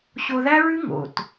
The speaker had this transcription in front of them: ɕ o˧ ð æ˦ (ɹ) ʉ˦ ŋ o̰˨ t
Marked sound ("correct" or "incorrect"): correct